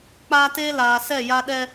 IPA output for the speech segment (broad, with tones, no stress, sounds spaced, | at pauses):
k͡p aː˦ t eː˦ l aː˨ s ɛ˦˨ j a˦ ɗ ɛ˦